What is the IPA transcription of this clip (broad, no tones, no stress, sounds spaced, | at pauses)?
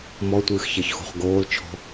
m ɔ tʷ ɨː x ç ɛ ç x ṳ χ ɡ oː l t͡ʃʰ ɔ̤